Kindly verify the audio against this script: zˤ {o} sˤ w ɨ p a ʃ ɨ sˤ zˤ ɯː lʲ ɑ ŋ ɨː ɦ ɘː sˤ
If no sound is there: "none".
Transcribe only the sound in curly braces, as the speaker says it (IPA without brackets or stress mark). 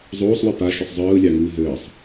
oː